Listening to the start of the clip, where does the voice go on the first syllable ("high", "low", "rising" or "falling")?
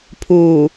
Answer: low